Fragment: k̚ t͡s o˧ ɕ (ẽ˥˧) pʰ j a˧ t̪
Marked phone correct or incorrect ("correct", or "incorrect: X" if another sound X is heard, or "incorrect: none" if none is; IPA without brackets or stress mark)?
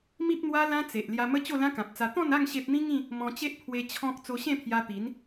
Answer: correct